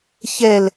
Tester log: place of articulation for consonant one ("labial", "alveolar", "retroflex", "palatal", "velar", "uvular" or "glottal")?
palatal